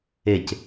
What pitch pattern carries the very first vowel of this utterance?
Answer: falling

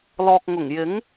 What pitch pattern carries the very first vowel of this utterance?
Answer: low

